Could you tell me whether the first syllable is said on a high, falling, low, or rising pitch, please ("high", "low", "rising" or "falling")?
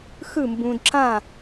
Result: falling